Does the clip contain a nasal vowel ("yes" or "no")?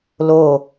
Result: no